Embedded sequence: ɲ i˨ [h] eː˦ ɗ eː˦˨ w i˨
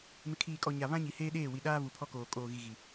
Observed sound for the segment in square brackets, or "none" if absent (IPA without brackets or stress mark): h